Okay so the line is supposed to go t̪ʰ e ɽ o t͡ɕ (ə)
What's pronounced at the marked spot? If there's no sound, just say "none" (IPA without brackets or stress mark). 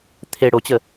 ə